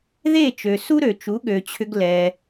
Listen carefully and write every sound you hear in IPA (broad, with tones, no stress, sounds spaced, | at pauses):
ð e˥˩ t͡ʃ ø˩ s u˥ ɾ ø˩ t͡ʃ u˩˥ ɠ ø˩ t͡ɕʰ ʏ˧ ɡ l ɛ˩